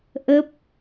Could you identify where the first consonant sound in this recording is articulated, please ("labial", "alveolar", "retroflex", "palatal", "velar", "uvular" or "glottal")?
glottal